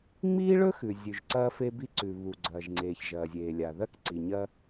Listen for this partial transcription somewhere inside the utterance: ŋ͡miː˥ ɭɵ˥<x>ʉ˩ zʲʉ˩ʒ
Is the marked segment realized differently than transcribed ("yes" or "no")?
no